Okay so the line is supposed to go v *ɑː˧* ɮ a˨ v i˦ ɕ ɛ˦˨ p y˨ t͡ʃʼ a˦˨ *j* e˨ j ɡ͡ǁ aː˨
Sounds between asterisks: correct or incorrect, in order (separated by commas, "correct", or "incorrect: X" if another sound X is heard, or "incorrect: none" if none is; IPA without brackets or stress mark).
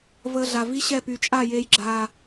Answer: incorrect: əː˧, correct